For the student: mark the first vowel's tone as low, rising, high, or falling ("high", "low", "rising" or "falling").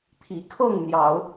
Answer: rising